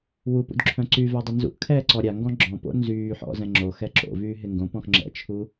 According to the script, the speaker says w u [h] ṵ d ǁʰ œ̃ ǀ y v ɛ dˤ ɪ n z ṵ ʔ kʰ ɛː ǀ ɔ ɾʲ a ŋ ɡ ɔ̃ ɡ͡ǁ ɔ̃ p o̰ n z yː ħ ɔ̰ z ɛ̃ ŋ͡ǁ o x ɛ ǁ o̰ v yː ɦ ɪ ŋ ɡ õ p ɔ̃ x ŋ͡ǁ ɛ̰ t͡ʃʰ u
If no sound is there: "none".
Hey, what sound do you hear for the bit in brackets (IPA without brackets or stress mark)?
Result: p